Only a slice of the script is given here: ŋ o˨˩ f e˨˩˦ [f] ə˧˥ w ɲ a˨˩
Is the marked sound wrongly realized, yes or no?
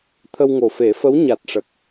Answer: no